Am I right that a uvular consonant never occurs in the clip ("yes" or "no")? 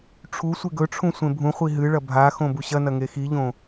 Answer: no